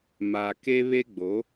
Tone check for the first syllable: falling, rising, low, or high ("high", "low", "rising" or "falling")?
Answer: low